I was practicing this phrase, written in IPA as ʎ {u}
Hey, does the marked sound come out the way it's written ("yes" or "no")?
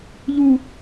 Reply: yes